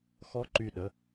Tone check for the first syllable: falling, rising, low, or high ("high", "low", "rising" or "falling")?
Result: rising